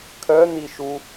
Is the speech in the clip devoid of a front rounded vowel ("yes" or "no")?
no